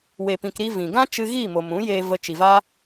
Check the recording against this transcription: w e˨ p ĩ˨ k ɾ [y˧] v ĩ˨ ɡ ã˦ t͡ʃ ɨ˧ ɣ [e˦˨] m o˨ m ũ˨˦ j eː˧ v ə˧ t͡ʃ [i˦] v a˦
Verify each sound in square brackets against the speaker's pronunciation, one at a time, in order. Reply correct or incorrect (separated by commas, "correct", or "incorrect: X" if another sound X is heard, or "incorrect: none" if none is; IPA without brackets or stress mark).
incorrect: i˧, incorrect: i˦˨, incorrect: i˨